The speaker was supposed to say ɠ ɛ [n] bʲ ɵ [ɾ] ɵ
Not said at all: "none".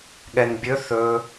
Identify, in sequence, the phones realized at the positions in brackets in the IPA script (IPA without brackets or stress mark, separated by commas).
n, θ